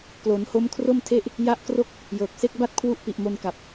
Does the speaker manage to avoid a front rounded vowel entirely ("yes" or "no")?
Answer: yes